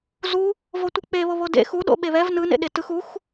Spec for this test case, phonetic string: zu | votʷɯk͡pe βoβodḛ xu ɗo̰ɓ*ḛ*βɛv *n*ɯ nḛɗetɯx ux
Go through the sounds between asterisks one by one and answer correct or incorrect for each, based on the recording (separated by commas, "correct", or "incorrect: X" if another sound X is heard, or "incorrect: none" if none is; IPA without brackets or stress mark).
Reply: incorrect: e, correct